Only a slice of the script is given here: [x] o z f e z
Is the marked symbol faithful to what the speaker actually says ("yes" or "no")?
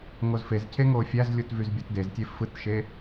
no